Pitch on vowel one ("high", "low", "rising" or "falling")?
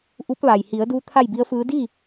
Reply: rising